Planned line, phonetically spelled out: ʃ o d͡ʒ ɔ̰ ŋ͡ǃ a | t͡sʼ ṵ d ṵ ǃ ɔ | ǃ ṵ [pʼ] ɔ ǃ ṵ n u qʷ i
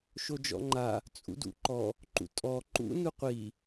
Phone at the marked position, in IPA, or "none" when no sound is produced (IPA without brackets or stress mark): tʼ